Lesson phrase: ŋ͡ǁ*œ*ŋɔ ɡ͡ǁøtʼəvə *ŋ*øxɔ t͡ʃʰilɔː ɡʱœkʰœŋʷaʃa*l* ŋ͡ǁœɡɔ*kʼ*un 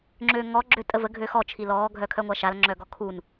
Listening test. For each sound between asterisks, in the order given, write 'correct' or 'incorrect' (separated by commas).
incorrect, incorrect, correct, incorrect